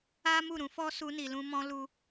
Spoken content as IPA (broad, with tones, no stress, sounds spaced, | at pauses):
a˦ m u˦˨ ɾ ũ˧ f ɔ˦ s u˧ n i˨ l ũ˧ m ɔ̃˧ l u˧